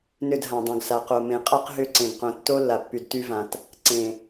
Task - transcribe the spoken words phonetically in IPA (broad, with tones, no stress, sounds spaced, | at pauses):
n ʏ˦˨ d ɦ ã˨ dˤ õ˨ ɡ s a˨ q o˨ m ẽ˨ qʼ a˦ q ɦ ʏ˦ ǀ ẽ˨ ɡ q õ˨ tː o˦ lː a˨ pː y˨ d t y˦ v ã˨ t | ǀ ẽ˨